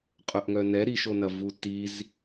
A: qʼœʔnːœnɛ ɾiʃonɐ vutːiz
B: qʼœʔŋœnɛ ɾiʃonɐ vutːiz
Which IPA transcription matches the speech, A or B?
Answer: B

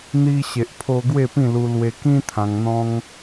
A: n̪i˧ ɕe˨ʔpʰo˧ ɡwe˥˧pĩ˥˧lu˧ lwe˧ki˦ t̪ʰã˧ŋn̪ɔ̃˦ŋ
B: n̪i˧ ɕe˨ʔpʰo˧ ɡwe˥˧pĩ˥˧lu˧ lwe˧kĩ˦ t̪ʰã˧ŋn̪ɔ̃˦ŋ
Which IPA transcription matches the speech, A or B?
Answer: B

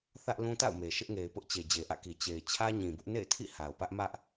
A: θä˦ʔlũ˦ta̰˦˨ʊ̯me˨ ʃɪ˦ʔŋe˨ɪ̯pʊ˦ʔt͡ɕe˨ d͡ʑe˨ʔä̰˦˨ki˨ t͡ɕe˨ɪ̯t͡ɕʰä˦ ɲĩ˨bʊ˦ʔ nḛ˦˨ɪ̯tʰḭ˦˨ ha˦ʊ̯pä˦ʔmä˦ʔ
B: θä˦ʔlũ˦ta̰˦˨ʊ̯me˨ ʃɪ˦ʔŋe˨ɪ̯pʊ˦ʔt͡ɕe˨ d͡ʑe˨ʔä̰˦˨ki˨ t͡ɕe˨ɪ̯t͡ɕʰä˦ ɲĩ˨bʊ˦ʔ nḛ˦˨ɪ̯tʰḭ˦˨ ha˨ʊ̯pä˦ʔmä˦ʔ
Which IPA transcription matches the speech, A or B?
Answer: B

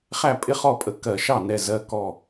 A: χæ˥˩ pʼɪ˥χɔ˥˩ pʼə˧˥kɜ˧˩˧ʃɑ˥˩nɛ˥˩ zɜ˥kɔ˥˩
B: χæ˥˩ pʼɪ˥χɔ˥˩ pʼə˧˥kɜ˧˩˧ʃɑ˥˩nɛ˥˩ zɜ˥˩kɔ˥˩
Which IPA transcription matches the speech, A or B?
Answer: B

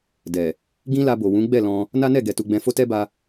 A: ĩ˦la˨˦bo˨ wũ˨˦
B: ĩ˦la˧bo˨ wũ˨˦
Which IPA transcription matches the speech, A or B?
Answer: B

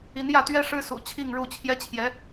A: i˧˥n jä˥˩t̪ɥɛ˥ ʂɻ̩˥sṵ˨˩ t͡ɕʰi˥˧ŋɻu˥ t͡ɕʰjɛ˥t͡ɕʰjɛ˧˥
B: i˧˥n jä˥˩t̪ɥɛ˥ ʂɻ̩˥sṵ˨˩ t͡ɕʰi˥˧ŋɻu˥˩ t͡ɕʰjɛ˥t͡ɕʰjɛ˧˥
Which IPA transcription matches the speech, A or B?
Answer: B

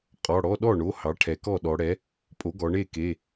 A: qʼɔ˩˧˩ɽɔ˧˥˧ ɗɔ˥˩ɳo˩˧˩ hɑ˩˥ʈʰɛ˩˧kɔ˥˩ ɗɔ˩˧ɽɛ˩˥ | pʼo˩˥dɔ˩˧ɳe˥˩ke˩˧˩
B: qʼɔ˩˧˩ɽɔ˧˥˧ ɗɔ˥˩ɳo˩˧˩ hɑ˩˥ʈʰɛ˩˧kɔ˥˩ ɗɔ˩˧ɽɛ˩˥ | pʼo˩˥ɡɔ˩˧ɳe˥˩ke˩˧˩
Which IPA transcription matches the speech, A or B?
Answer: B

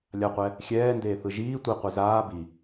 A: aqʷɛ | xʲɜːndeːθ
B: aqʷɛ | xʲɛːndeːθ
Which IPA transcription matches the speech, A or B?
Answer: B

